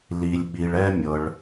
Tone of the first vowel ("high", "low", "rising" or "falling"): low